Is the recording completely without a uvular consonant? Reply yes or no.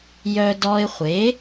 no